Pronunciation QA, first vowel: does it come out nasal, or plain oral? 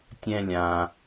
nasal